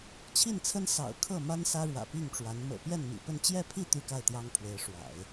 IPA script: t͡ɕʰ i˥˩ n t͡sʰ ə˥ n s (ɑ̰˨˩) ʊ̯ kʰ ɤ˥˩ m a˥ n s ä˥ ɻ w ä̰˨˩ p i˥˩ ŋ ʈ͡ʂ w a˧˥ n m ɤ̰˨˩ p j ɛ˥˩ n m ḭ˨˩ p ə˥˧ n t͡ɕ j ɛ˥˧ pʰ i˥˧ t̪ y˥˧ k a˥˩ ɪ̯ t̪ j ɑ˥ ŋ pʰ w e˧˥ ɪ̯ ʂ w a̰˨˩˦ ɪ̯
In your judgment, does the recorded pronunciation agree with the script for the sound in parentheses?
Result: yes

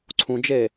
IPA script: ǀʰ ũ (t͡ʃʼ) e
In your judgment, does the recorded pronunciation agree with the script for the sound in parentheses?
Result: no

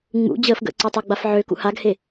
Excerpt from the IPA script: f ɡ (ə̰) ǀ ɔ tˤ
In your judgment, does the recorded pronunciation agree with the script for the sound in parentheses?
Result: yes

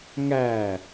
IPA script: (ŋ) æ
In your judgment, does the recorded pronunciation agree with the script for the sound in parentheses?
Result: yes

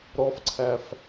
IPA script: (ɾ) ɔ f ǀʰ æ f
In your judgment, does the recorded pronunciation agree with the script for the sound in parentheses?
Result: yes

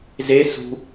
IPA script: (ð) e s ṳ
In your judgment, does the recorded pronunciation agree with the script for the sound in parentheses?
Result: no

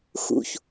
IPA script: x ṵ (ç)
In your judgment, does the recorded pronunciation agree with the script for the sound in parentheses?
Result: yes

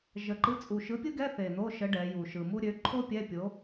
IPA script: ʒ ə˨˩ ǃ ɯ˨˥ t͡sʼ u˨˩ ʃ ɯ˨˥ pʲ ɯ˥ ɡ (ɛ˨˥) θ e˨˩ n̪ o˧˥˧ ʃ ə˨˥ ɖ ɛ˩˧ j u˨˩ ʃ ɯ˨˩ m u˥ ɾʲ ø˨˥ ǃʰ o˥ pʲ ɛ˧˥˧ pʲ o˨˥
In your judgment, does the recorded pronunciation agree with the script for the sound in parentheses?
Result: no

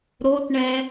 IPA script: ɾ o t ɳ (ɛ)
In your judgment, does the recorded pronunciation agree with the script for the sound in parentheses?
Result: yes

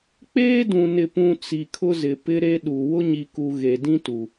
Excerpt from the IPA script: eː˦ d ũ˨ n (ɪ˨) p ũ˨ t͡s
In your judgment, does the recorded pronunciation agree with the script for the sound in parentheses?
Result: yes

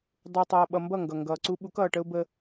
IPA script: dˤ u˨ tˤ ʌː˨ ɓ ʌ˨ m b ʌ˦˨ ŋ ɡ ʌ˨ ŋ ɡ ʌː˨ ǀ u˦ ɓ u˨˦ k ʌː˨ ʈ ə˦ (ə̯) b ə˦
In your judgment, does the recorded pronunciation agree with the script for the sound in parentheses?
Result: no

